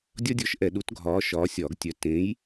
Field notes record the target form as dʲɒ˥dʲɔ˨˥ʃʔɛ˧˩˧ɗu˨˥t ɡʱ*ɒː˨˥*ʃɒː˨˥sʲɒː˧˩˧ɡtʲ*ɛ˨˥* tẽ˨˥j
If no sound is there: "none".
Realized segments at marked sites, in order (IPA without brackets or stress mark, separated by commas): ɒː˨˥, œ˨˥